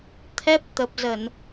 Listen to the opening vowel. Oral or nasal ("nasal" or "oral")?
oral